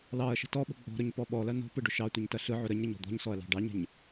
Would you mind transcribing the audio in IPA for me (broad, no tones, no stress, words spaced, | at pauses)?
lɑɐ̯ ʃə̤tɔɓə̤ ɡ͡bɔ̤ɾʊɲ pɔɓɔlɐ nɔ̤ pɯɖʊʃɑtʷɯɲ tɐɬɯʕʊ ɾəɲ ɾəɲɔ̤d̪ɔ̤ɲsɔɐ̯ lɑ̤ɖɑɲə̤ɲ